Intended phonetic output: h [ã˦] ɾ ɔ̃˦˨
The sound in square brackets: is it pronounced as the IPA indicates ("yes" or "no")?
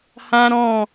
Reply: yes